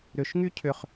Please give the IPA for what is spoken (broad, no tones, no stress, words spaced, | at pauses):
ɾʏʃŋy cʰʏχ